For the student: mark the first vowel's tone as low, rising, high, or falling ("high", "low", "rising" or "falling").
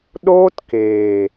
high